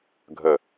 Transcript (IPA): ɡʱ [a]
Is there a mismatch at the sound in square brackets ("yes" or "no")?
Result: yes